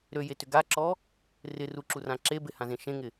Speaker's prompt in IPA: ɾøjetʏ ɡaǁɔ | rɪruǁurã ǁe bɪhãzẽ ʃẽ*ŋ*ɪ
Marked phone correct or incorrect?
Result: correct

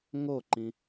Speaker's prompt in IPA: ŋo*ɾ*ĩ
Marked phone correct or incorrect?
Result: incorrect: ǃ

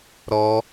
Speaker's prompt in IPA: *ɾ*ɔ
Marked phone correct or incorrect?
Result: correct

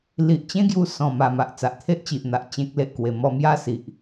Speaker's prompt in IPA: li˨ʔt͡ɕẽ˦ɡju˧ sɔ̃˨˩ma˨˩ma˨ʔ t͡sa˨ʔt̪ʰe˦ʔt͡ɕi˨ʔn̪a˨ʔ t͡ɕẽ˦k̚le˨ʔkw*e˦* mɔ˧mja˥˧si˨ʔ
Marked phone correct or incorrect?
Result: incorrect: e˧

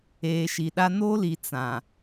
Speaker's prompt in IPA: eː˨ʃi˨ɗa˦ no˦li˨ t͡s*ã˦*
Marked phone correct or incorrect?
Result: incorrect: ã˨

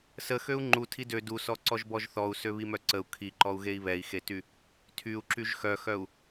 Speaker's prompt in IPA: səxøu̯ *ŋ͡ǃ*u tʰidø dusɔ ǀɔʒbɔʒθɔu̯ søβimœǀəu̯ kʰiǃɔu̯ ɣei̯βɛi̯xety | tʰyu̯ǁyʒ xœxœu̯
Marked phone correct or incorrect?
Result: correct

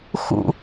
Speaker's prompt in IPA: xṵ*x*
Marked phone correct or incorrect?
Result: incorrect: none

